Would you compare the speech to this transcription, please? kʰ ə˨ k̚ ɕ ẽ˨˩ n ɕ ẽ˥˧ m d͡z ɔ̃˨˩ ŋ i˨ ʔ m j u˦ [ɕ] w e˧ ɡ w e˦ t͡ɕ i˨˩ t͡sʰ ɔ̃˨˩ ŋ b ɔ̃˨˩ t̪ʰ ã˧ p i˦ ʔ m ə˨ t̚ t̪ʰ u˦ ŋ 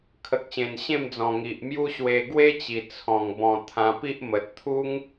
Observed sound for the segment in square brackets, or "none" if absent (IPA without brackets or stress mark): ɕ